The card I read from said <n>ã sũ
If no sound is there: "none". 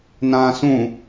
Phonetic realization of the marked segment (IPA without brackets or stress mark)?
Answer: n